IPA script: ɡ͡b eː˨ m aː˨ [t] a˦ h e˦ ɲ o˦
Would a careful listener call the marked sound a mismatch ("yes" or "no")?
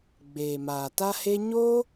no